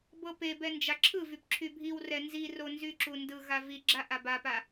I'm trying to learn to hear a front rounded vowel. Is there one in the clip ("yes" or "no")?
yes